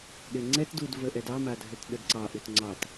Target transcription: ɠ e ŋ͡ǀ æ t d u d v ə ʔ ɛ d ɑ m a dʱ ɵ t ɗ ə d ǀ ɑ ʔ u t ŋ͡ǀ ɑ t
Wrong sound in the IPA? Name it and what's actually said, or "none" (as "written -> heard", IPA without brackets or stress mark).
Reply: æ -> ɛ